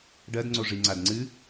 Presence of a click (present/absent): present